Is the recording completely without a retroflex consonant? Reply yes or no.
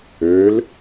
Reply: yes